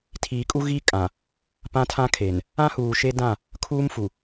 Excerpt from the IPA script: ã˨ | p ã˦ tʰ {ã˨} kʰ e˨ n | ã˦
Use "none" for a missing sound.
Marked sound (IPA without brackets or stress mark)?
ã˦